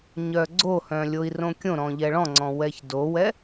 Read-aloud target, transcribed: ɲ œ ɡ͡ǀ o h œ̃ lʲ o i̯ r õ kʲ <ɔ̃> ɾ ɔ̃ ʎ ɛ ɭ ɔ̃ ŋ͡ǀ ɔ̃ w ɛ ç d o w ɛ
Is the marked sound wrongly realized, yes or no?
yes